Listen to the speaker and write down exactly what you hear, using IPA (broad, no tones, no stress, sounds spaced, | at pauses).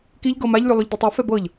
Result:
k i ʎ ɡ ɤ m a ʎ lʲ ʉ lˠ ʉ ʎ d i tˤ ɤ f ɛ b ɤ ʎ